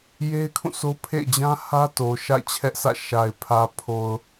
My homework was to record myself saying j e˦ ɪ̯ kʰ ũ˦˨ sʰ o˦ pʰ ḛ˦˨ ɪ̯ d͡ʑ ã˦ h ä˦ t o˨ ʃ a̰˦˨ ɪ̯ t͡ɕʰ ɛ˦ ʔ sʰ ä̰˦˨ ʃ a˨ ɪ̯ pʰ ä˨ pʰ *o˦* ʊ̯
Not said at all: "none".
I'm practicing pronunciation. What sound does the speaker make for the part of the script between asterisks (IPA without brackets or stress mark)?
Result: o˨